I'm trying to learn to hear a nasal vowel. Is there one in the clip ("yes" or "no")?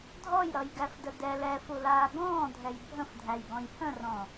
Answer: yes